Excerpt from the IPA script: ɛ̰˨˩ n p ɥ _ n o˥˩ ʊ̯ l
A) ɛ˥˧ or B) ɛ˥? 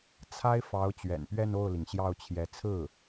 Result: A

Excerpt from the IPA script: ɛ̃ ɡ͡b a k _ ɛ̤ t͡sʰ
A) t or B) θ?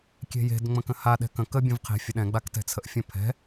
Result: A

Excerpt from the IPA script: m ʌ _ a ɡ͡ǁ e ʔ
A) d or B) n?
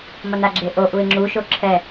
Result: B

